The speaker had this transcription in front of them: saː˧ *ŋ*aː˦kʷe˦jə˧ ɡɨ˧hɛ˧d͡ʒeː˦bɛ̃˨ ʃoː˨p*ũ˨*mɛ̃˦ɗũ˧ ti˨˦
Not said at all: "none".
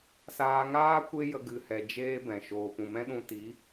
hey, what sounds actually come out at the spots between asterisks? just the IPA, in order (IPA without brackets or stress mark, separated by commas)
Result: ŋ, ũ˨